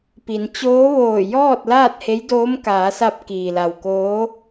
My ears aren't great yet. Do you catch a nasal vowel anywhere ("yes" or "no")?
no